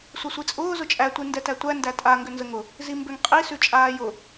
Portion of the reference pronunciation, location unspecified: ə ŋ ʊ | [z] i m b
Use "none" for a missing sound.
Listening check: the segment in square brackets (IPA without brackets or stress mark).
z